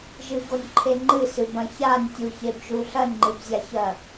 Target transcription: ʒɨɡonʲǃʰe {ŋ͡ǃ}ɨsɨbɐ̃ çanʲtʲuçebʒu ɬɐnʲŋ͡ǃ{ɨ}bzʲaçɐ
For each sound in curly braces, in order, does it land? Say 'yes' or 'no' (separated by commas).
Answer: yes, yes